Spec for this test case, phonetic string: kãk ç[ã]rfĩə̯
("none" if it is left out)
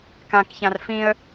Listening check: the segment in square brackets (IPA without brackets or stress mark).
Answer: ã